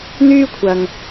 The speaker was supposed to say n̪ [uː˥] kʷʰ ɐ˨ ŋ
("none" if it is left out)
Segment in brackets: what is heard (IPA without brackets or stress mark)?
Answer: yː˥